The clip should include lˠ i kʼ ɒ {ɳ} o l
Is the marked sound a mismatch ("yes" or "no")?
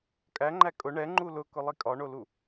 no